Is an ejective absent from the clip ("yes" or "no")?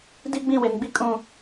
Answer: no